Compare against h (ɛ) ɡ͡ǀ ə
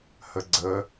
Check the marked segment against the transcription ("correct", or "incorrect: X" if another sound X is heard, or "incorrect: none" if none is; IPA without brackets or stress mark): incorrect: ə